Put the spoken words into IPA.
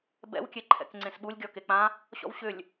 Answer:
b ɛ̰ w kʲ e ǃʰ ɛ̰ k ŋ͡ǀ ẽ s ɓ u lʲ ɡʲ ɔ k e k͡p ã | ɕ ɔ̰ w ɕ ʏ lʲ

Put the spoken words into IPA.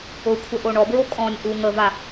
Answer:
ʊ kʷʰ ə ʔ o ɳ ɔ b ɹ o kʼ ɔ̃ nʲ ʔ u ŋ ə v a

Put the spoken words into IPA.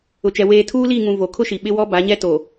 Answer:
ʊ˨ t͡ʃ ɛ˨ w eː˨ tʰ uː˦ l i˦˨ ŋ ũ˨ v o˨ kʰ ʊ˦ ʃ i˨ ɓ ɪ˦ w ɔ˦ b a˨˦ ɲ ɛ˦ t o˨

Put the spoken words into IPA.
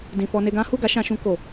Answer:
d ĩ˨ f ɔ˧ n e˧ ɡ ã˦ h u˦˨ ɡ a˨˦ ʃ ã˧ ʃ ũ˧ k o˨

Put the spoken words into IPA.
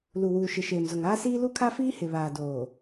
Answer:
l u˨ w uː˨ ʃ ɪ˨ ʃ eː˨ m z ʊ˨ ŋ aː˦ s iː˦ l u˦ kʰ a˦ f iː˦ h ɪ˨ β aː˨ d oː˨

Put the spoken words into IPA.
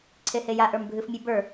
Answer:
ǀʰ e h e j a ʔ ə˞ m bʱ ɨ f mʲ ɨ b ə˞

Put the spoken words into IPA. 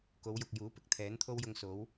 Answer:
k o˨˧ w j ʊ˨ k̚ j uː˨˥ p ɪ˨ k̚ t̪ʰ ɛː˨˥ n t̪ʰ o˥ w j ʊ˧ ŋ s o˨˥ w

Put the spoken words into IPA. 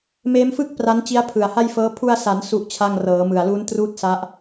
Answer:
m eː˦˥ m f ɯ˥˩ k̚ p r a˦˥ n t͡ɕ i˦˥ a̯ pʰ ɯ˨˩ a̯ h a˥˩ j f ɤː˦˥ pʰ u˧ a̯ s a˩˦ n s u˥˩ ʔ t͡ɕʰ a˥˩ ŋ r ɤː˩˦ m ɯ˨˩ a̯ l u˦˥ n t r uː˥˩ t̚ s a˦˥ ʔ

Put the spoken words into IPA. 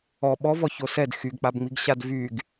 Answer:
ɔ ɓ ɔ v ɔ ç o s ɛ d x y ɡ k͡p a b ŋ͡m i ɡ ɕ a d v y ɡ

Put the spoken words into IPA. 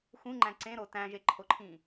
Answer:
x ũ ŋ͡ǃ æ̃ ǀ ẽ ɾ o t æ̃ ʒ e ǃʰ o ǃʰ ĩ

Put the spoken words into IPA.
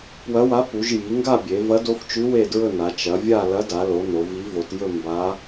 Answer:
p w ɐ˧˥ w a˧˥ p u˩˧ ʒ j i˩˧ ŋ ɡ a˥˧ bʲ e˩˧ v ɐ˧˥ d o˧˥ f t͡ʃ ʉ˧˥ w e˥˧ d ɹ ɵ˥˧ n a˩˧ t͡ʃ ɐ˩˧ vʲ a˥˧ l ɐ˧˥ d a˩˧ l o˩˧ n o˩˧ v i˧˥ v o˩˧ t j ɵ˥˧ m b a˧˥

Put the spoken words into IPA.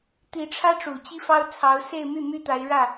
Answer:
t̪ i˧˥ ʈ͡ʂʰ ä˥ ʈ͡ʂ u˨˩ t͡ɕ i˥ f ɑ˥ ʊ̯ t͡sʰ ɑ˧˥ ʊ̯ s e˥˧ ɪ̯ m y˥˩ m y˥ t̪ a˧˥ ɪ̯ ɻ ä˥˩

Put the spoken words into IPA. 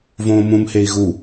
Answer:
v õː m ũ m h e i̯ ɣ u

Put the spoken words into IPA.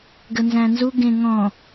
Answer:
ɡ ə n z æ̃ n z u ɡ ẽ ŋ ɔ̃

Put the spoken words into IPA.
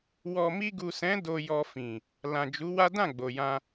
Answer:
w ɔ˨ m i˧ ɡ u˨ s ɛ̃˨˦ d o˧ j ɔ˧ f ĩ˨ | l ã˨ d͡ʒ u˨˦ w a˦ d ã˦˨ ɡ͡b o˨ j ã˧

